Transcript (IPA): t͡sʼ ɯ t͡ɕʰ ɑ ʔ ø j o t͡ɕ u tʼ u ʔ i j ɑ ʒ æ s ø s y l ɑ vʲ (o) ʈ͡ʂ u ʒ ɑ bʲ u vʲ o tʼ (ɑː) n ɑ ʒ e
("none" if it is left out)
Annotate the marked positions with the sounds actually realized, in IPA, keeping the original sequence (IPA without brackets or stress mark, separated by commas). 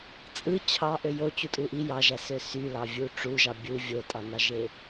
u, ɑ